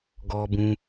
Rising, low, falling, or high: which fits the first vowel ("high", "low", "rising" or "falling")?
high